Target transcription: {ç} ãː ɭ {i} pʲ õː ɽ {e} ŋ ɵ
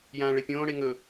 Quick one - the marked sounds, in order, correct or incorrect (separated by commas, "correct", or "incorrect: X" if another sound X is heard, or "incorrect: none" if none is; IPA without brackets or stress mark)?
incorrect: j, incorrect: e, correct